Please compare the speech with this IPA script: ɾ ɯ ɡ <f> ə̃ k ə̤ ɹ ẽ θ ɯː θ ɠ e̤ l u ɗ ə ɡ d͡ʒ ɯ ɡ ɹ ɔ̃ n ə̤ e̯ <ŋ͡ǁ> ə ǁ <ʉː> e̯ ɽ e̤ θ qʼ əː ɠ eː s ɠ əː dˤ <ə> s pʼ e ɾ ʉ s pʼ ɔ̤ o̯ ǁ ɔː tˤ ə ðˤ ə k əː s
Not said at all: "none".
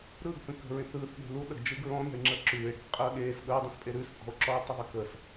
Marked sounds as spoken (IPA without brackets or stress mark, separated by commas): θ, ŋ͡ǁ, ʉː, ə̃